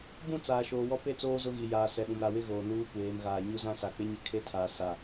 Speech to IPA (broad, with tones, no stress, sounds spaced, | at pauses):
b ũ˦˨ t͡s aː˨ ʃ oː˨ w ɔ˦ p e˦ t͡s oː˦ z ʊ˦ ɣ i˨ j aː˨ s ɛ˨ ɗ ũ˨ m ɾ a˨ w ɪ˦ ɣ oː˨ n uː˦ kʷ eː˨˦ m ɣ aː˨ ɲ u˦ z ã˦ s a˨ k͡p ɪ˦ ɲ ɪ˦ kʰ e˦ tʰ aː˨ s a˨